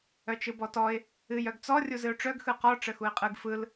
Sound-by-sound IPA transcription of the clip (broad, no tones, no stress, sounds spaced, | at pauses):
œ t͡ʃ ɯ b ɔ t ɔ ɪ̯ | ɨ j œ ɡ t͡s ɔ rʲ u z ɨ ʊ̯ ʈ͡ʂ œ ɡ x ɯ q ɔ ʈ͡ʂ ə x u ɪ̯ qʼ ɯ ɡ f ɯ l